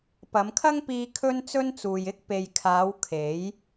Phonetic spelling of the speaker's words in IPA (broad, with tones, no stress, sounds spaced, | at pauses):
p ɐ˨˧ m kʰ ɐ˥ ŋ p iː˧ kʰ ɵ˥ n t͡s ɵ˥ n t͡s uː˨ j ɪ˥ k̚ p e˨ j kʰ aː˨˧ w kʰ e˨˥ j